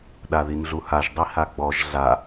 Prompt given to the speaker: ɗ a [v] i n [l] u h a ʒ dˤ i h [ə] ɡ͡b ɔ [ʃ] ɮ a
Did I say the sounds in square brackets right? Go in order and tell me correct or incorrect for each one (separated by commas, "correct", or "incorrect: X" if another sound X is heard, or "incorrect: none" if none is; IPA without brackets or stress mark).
incorrect: ð, incorrect: ɮ, incorrect: a, incorrect: ʒ